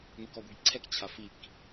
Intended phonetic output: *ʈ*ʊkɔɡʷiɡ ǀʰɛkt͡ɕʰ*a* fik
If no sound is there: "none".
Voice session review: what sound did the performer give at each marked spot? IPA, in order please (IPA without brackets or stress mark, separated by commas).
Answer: n, a